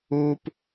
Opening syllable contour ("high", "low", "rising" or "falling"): low